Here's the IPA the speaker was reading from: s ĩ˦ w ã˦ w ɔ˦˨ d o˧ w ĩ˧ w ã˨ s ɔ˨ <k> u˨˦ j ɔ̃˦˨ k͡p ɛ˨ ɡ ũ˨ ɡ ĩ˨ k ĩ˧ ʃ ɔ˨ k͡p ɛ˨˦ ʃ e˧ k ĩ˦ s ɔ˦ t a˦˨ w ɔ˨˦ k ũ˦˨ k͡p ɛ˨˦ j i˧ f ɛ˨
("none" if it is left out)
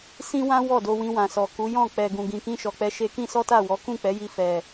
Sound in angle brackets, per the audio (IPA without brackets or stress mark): k